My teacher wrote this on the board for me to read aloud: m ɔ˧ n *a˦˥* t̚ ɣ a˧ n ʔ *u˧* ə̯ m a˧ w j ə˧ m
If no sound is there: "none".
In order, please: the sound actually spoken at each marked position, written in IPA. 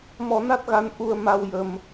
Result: a˦˥, u˧

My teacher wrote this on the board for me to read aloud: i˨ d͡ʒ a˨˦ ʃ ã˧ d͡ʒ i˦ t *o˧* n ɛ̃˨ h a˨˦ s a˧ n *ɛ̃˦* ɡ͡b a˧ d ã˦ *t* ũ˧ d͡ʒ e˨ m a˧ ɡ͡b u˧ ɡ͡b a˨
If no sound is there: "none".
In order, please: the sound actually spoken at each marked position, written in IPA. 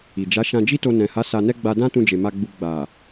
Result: o˧, ɛ˦, t

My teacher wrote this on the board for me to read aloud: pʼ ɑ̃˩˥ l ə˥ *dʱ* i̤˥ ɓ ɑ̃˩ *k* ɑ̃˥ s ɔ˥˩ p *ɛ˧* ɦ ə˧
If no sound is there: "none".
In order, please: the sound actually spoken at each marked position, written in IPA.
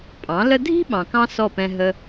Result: dʱ, k, ɛ̃˧

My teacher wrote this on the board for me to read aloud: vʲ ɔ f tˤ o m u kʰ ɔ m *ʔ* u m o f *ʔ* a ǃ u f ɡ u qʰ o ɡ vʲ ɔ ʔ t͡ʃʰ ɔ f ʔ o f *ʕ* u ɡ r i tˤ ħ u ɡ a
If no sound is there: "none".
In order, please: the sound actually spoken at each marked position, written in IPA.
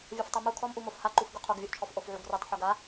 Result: ʔ, h, ʕ

